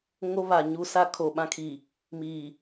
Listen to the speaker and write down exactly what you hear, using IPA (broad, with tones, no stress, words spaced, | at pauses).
ŋo˦βa˨ɲu˦sa˦ kʰo˨ ɓã˦kʰi˨ | miː˨